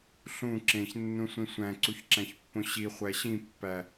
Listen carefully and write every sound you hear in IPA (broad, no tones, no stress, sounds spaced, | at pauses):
ɬ ũ ǁ ẽ ç nː ũ sʷ ĩ sʷ æ̃ ǀ u ç ǁ æ̃ ç pː õ ɕ i χʷ æ ɕ ĩ pː æ